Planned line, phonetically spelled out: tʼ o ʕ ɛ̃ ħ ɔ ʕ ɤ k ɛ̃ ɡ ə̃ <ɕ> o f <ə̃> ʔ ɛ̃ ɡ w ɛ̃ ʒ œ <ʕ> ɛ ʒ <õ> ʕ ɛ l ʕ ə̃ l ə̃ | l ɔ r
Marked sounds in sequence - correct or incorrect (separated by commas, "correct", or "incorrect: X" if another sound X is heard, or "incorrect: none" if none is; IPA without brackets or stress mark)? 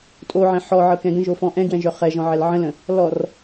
incorrect: ʒ, incorrect: ɔ̃, incorrect: χ, incorrect: ɔ̃